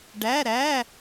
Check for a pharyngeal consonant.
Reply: absent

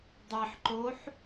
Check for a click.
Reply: present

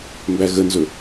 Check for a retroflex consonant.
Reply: absent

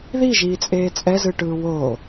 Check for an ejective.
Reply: present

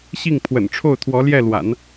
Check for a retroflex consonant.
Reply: present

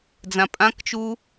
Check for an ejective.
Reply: present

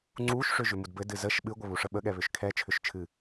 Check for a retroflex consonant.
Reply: present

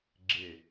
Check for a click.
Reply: present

